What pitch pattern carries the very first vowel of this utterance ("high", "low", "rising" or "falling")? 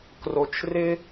low